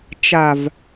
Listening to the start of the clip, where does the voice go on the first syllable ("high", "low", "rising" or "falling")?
low